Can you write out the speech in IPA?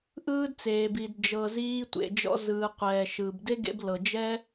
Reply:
ʔ ɯː˦ d t͡s eː˨ b i˨ d d͡ʒ ɤ˨ z iː˧ tʷ ḛ˨ d͡ʒ ɔ̰˧ z ɯː˨ qʷ ɛː˨ ʃ ɯː˨ b d e˦ ɡ ḛ˧ b l ɤ˨ d͡ʒ ɛ˦

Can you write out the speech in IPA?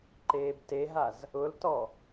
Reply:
ǃ eː b t e ɦ a z | ʊ l t ɔ

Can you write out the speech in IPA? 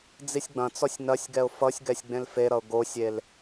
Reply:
d͡z i sʲ ɡ͡b ɐ̃ t͡s ɔ sʲ n ɐ sʲ ɡ ɛ ʊ̯ f ʌ sʲ ɡ ɛ sʲ ɡ͡b ẽ l f e ɾ ʌ ʊ̯ ɡ o sʲ e l

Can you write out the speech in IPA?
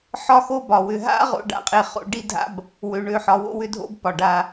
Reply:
ħ ɒ˦ x o˦ b ɒ˨ w ʏ˨ ɦ a̰˦ ʁ o̰˦ ɖ a̰˦˨ qʼ e˦˨ χ o̰˦ ɖ i˦ dʱ a̰˦ b | w ø˨ ɳ ø˨ ħ ɒ˨ w o̰˦ w ʏ˦ dʱ o̰˦ b p ɒ˨ ɖ a˦

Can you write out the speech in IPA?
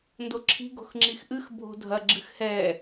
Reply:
n d o ǁʰ i̤ ɡ o̤ x ŋ͡ǁ i x ʔ ɨ x bʱ o̤ dʱ ɐ ɡ͡ǁ ɨ x h ɛ

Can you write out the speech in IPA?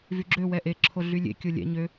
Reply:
v y ɡ͡ǁ ø w ɛ ʔ e ǁʰ o ɮ y lʲ ḛ kʲ o lʲ ɛ̰ ɲ ø

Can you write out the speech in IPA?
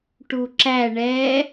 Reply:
ʈ u ǁ æ ɳ ɛ

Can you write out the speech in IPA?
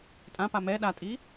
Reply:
tʼ ã p a m ɛ ɗ a tʼ i

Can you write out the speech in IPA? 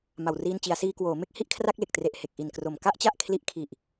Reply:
m a˨˩ w r iː˧ n t͡ɕ i˩˦ a̯ s iː˧ k w oː˩˦ m e˥˩ k̚ h i˦˥ ʔ kʰ r a˥˩ k̚ l e˨˩ k̚ t r e˨˩ ʔ h e˨˩ k̚ ʔ i˨˩ n k r o˨˩ m k a˥˩ ʔ t͡ɕ a˥˩ ʔ kʰ l i˦˥ ʔ kʰ i˨˩ ʔ

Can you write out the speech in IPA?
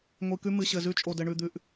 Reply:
ŋʷ i˨ k ʉ˦ m ɨ˨ ɕ ɘ˨ z ʉ˦ t͡ʃʼ o˨ d ɘ˨ ɳ ʉ˨ d̪ ʉ˨ ʔ

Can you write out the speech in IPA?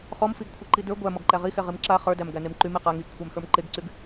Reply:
χ ɔ m f i ɡ kʷʰ e ǃ i d ə˞ ɡʷ æ m ɔ ɡ ǃ æ ʁ i x ɛ ʁ i m ǁ a χ ə˞ d æ m ɡ æ n e m ǃ y m i q a ŋ i ɡ kʷʰ æ m x ə˞ m ǃ e ɡ ǀ y ɡ

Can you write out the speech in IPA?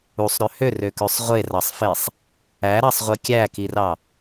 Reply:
u sˤ ɾ ø h ø r ø k ø sˤ ʁʷ e r ɑ sˤ f e sˤ | æ ɾ ɑ sˤ ʁʷ i kʲ æ k i r ɑ

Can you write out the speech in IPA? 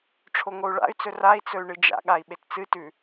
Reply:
ʈ͡ʂʰ o ŋ o u̯ ɭ a̰ y̯ t͡s ɵ r a i̯ t͡s ɵ y̯ ɳ ɨ d͡ʒ a̰ ɠ a i̯ ɓ e t t͡s ɨ t ʉ

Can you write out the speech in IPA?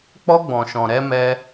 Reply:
k͡p ɔ˦ ɡ͡b ɔ̃˨ ʃ ɔ̃˨ ɾ ɛ˦ m ɛ˦

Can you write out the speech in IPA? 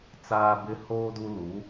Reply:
t͡s aː˨ b ɪ˨ h oː˨ d u˨ l u˨˦

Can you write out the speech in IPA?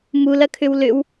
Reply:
m u l ɐ kʰ ʏ w l ʏ w

